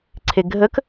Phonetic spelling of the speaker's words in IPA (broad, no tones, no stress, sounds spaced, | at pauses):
ǀʰ e ɡʱ ə k